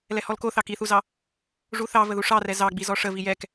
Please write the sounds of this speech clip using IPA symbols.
l ɛ h ɔ l k o θ ɑ k i θ u z ɑ | ʐ u θ ɑ v ə ð u ʂ ɑ r ɛ z ɑ ɡ͡b i z ɔ ʂ ə v i j ɛ k

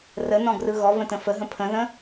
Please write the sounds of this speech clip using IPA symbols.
r ə n ɔ̃ ɡ r ɯ ɣ ɔ v ə̃ t ə̃ f ə ɦ ə̃ pʰ ə̃ ð ə̃

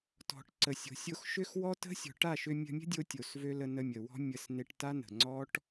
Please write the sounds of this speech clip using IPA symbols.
t ɔ̤˨ ʈ ǀ ə˨ sʲ o̤˨ sʲ o˧ x ʃ ʏ˦ x w ɔ˦ t ə̤˦ sʲ ɔ̤˨ ʈ a˦˨ ʃ ʏ˧ mʲ ə̤˧ mʲ ə̤˦ dʲ o˧ tʲ o˨ s v ø˦ l ə˧ n ə˧ mʲ ə˨ w ɔ̤˦ mʲ ə˧ s n e˧ ʈ t a˦ n ə̤˨ ŋ͡ǀ ɔ˦ ʈ

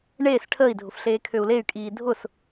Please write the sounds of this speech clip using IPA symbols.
ɳ eː s ʈʰ əː i̯ dʱ ʊ f ɬ eː kʰ ø u̯ l e y̯ kʼ iː dʱ ʊ s

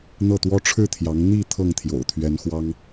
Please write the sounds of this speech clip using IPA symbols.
n̪ ɤ˥˩ t̪ w ɔ˥ ʈ͡ʂʰ ɻ̩˥˩ t̪ʰ j ɑ˧˥ ŋ n̪ i˥˧ t̪ʰ ɤ˥˩ ŋ t̪ʰ j o̰˨˩ ʊ̯ t̪ʰ ɥ ɛ˧˥ n x w ɑ˥ ŋ

